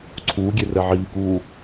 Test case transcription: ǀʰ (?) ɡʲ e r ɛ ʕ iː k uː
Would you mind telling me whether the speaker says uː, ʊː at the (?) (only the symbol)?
uː